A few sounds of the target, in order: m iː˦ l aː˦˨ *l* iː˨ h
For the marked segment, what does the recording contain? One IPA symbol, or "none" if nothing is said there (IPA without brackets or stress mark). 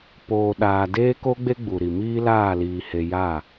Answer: l